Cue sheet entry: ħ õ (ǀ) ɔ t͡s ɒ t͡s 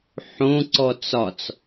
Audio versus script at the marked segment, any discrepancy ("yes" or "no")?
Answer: no